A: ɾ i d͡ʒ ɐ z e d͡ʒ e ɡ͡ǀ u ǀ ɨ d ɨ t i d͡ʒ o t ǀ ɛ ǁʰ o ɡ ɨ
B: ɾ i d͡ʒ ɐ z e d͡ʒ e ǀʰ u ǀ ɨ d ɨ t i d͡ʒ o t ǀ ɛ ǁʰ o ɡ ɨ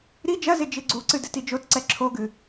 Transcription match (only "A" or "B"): A